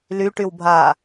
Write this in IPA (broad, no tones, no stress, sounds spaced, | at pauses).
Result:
l y ʈ y w bʱ a